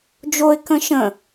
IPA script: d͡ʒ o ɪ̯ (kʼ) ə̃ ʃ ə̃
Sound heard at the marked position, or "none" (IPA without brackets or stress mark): k